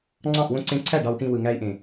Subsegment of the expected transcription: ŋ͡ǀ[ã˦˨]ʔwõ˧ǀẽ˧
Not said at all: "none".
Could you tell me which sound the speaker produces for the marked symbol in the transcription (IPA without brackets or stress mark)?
ɑ̃˦˨